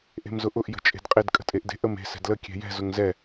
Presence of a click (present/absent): absent